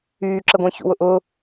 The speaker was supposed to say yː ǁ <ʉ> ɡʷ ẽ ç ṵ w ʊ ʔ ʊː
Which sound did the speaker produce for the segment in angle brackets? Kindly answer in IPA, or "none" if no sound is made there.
ə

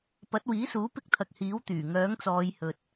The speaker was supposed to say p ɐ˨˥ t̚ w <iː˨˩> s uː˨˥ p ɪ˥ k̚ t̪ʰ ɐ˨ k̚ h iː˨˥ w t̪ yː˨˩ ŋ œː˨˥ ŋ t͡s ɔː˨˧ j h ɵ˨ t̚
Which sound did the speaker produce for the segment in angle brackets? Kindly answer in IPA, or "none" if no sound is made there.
iː˨˥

